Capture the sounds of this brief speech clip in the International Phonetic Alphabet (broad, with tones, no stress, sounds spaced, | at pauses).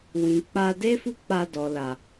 w ĩ˨ k͡p a˧ d e˦ f u˦ k͡p a˧ d ɔ˨ l a˨